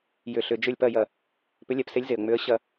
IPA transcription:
j ʏ˧˩ ɬ ʏ˧˩˧ d͡ʒ ʏ˥˨ lʲ p ɐ˥˨ j ɐ˧˩ | p ʏ˨˥ lʲ ɛ˩˧ p s e˨˥ lʲ z e˩ ə̯ ŋ͡m ʏ˨˥ ə̯ ɕ ɐ˧˩˧

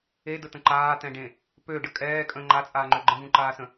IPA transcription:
e d ə t̪ ə̃ ǃ aː t̪ ɛ̃ ɖ ẽ | p ø ɖ ə kʼ ɛː kʼ ə̃ ŋ͡ǃ a t͡sʼ aː ŋ͡ǃ ø ɡ͡ǃ ə̃ v ũ ǃ aː s ə̃

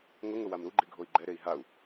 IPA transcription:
ŋ ʊ ŋ ʊ w a m ɾ u ɡ͡ǃ i ɡʱ o i̯ ɡ͡ǃ ɛ ɾ e i̯ ɦ a u̯

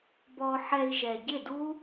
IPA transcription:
b ɔ˧ ħ ɛ˧ i̯ ʒ ɛ˨ ɟ ɪ˦˨ d u˦

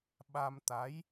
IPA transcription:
ɓ a˧ m t̪ a˨˦ j

